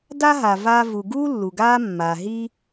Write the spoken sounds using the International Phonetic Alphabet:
d a˥ ɦ a˩ v a˦ v u˨ ɡ uː˥ lː u˩ ɡ aː˦ mː aː˩ ɦ i˦

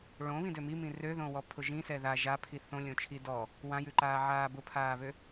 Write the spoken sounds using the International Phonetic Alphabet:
ɭ õ β ĩ d ø m i m ĩ r ø ð õ w ɔ pʰ ʊ ʒ ĩ s ɛ ð a ʒ a pʰ i θ õ lʲ õ t͡ʃʰ i d ɔ | w ã j ʉ ǃ aː ʕ aː b ʊ pʰ aː β ø

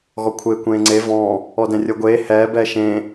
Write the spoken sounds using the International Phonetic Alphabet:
ɣ ɔ kʷʰ eː kʷ ẽː ŋ͡ǀ e v ɔ̃ː | ɔ d ɛ̃ rʲ ɤ ɡʷ eː h ɛː b ɛː ʃ ẽː

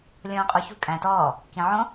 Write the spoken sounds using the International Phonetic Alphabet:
lʲ õː qʼ o ç ṳ kʼ æ̃ t ɔː | k ĩ ʕ õ

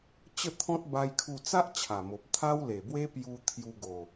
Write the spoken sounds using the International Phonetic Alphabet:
t͡ɕ ə˥˧ t̪ʰ ɔ̃˦ t̚ b a˦ j kʰ u˥˧ t͡s a˦ ʔ t͡ɕʰ a˨˩ m o˨ p̚ t̪ʰ a˦ w l e˨˩ b w e˦ p j u˧ t̪ʰ j u˧ ɡ o˨˩

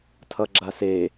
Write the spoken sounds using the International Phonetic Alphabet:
tʰ ʌ ɡ͡ǁ a s e

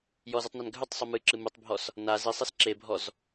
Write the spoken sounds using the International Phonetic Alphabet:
j ɔ z ɨ tˤ n a n ɡʱ ʉ tˤ sˤ u m ɨ ǁ ɨ m u tˤ bʱ ɔ s | n a z i sˤ i s ǁ e bʱ ɔ z

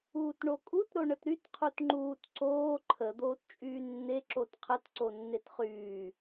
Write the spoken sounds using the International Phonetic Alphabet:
uː t ɳ o kʼ u t ɾ o ɳ ə t ɾ y t qʰ u t ŋ͡ǃ uː t ǀ oː ǃʰ ə d̪ oː t t͡ʃʼ yː nː e ǁ o t qʰ ə t ǀ o nː e t χ yː

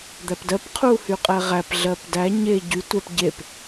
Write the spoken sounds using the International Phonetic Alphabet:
d̪ æ p d ɜ p qʰ u h y qʼ ɛ ʁ æ p ɮ ɜ p d æ ɲ e ɟ y tʷ ɛ p ɟ e p

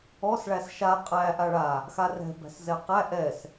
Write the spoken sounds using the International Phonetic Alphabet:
ɔ s ɭ æ s ʃ a qʼ æ ʔ a ɭ a | x a r ɛ̤ b æ̤ s z ɛ q æ ʔ ɛ s

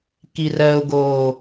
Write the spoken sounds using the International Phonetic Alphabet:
k i r ɜ ʊ̯ ɡ oː

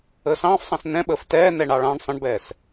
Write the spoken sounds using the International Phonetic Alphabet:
əː s ɑ̃ː f sˤ ɑ̃ s n ɛ̃ ɓ əː f t ɛː n ɛ ɳ ɑ ɭ ɑ̃ ɳ sˤ ə̃ ɳ b ɛː s

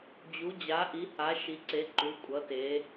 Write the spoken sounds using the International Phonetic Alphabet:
d͡ʑ u˩˧ d͡ʑ a˩˧ ʔ i˩˧ h a˩˧ ʃ i˩˧ ǀ e˩˧ ǃ u˩˧ kʷʼ ʌ˩˧ t e˩˧

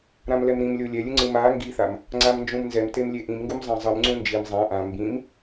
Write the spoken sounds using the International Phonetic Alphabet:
ɾ ã m l ɛ m ɾ ĩ m lʲ o lʲ ɛ lʲ ɯ ŋ͡ǀ ɯ m a ŋ ɡ i θ a m | ŋ͡ǀ a m n d͡ʒ ũ m n z ɛ m t e m lʲ e ʔ ĩ m ŋ ɡ u m zˤ ã zˤ ɯ m ŋ͡ǀ ũ n d͡ʒ i m zˤ ã ʔ ã m b ĩ m

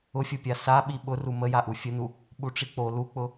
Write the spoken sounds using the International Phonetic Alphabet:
ʊ fʲ ʊ pʲ a s a ɓ i ɓ ʊ r u m ə j a ʔ u fʲ ə n u | ɓ u ʈ͡ʂ i k͡p o l u k͡p ʊ

